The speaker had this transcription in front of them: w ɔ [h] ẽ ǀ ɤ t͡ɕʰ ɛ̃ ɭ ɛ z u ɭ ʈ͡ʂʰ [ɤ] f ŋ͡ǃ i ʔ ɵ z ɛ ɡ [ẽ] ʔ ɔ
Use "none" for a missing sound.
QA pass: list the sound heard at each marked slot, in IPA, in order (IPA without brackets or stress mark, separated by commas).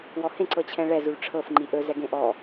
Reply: h, ɤ, ẽ